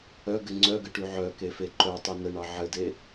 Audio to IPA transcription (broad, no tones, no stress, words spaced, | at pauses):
œɡɘ ŋ͡ǀœɡəʈy ʕœkefe ǃœtˤe nəɳɑ ʕɘde